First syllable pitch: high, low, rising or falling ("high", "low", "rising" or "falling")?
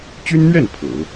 high